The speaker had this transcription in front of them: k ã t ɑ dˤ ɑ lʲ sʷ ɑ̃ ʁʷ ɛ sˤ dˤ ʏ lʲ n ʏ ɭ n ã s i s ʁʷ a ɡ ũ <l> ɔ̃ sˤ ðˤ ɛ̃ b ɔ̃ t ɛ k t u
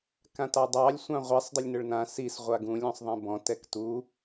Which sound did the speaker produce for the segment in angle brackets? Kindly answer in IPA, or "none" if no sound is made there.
lʲ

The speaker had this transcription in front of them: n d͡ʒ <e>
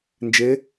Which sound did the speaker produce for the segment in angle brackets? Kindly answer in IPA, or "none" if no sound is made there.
e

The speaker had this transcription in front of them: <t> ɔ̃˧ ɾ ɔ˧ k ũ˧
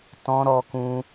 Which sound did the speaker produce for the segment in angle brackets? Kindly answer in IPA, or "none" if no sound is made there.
t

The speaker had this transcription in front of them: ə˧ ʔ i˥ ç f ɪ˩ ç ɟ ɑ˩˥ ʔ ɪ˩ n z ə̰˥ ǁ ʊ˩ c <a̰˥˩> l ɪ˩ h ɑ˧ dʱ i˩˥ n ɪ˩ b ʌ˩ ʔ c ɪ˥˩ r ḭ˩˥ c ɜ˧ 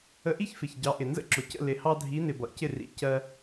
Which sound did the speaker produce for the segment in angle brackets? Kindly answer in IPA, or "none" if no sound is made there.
ə̰˥˩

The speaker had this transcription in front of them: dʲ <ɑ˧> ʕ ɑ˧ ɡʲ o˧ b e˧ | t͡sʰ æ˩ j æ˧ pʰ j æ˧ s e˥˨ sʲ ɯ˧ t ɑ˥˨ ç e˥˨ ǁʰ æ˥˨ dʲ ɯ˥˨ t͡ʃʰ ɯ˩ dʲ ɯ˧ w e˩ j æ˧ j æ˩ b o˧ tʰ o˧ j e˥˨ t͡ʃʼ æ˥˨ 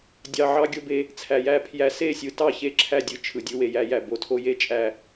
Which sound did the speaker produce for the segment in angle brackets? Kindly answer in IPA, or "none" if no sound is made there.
ɑ˧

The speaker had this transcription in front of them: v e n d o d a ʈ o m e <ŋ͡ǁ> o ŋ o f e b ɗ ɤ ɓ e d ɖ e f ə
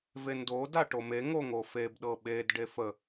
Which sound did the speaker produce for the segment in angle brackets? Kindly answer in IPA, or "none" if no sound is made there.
ŋ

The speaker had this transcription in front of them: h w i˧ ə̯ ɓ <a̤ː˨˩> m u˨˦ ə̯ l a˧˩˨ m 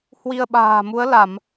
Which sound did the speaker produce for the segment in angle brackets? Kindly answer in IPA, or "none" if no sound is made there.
a̤ː˨˩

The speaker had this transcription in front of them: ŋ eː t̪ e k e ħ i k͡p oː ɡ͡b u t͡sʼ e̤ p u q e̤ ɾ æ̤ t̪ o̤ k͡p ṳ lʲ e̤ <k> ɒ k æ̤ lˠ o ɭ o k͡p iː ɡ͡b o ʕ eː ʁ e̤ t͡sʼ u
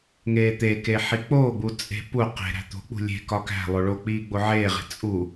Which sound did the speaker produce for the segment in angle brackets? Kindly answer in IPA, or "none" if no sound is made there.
k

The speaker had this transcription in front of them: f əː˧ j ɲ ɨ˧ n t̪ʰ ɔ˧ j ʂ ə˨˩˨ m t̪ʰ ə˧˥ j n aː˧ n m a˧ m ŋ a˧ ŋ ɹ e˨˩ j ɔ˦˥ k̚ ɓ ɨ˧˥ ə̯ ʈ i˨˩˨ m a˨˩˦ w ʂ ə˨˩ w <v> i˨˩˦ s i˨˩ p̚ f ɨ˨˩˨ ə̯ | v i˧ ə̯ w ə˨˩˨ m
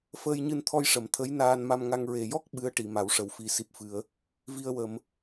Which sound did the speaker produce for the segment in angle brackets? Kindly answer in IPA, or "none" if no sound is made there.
f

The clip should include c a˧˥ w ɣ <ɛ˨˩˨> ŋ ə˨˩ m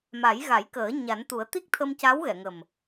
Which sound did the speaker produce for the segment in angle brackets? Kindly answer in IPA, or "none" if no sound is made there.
ɛ˨˩˨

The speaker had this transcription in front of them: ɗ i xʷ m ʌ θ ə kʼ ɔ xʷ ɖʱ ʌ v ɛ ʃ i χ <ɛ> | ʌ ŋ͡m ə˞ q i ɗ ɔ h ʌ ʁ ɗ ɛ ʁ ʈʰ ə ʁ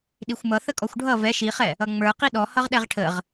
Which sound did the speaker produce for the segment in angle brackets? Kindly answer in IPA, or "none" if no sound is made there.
ɛ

